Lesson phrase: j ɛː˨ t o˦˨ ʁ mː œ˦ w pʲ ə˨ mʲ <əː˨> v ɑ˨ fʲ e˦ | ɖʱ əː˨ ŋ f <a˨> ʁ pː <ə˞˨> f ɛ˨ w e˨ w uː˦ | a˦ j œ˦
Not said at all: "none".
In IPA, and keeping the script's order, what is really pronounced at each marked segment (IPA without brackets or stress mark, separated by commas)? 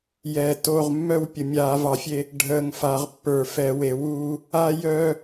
aː˨, a˨, ə˞˨